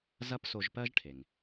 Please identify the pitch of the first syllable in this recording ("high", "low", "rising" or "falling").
high